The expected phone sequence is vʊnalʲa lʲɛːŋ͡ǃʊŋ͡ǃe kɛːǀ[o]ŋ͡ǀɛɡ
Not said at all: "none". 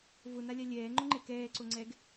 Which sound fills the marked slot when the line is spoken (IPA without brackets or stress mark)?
o